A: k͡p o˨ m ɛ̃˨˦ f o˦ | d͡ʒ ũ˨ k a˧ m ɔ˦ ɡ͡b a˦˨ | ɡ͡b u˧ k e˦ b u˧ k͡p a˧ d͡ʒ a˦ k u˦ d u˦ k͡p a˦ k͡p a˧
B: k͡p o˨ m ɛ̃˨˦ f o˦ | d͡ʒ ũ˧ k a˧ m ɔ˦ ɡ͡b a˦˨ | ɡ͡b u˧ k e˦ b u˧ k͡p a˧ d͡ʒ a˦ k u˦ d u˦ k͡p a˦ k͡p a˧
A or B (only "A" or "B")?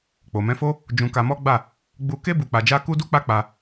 B